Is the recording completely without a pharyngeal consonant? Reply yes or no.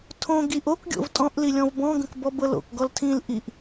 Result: yes